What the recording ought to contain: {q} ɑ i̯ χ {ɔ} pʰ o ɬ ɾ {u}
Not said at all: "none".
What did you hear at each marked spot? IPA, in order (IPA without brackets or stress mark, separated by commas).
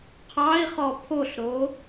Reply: qʰ, ɔ, o